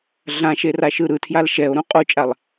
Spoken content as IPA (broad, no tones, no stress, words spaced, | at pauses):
ɮãʃeraʃɯ ɾɯtʰjal ʃɛo̯ɾũ qʼot͡ʃʼalˠ